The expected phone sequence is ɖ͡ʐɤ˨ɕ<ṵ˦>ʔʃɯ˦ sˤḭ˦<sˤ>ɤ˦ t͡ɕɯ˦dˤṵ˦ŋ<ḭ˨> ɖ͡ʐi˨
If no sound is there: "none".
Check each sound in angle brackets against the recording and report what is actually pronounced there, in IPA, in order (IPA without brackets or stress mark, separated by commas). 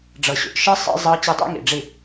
ṵ˨, zˤ, ḭ˨